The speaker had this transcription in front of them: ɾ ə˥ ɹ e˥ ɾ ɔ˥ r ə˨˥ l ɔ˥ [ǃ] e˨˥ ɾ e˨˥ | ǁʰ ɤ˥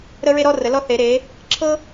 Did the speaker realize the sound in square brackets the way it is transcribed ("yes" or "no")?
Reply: no